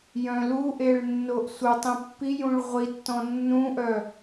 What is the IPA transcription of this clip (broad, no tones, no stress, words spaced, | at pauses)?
jœ̃luʔeɭ nːoʔsʷətˤĩ pːijũɭ ʁʷitːɔ̃ nːũʔœ